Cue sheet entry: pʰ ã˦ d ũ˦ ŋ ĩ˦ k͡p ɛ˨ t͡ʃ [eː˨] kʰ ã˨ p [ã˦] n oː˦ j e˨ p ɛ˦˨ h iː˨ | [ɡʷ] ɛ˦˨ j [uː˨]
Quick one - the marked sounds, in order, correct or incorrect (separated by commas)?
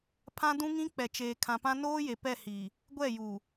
correct, correct, correct, correct